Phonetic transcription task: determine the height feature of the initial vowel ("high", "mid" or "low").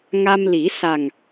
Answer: low